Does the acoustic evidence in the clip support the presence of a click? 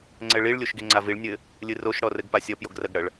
yes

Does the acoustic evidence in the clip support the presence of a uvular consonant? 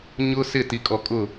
no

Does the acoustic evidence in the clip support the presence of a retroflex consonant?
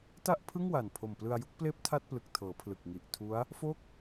no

